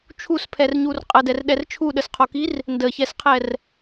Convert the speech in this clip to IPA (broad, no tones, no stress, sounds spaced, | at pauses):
t͡ʃʰ u s pʰ ɛ r ɲ u r qʼ ə d ɛ r ɗ ɛ r t͡ʃʰ u ɗ ə s qʰ o k i r | n d ə ç ɛ s qʰ ɛ r